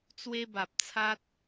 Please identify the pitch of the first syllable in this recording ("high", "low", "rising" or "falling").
high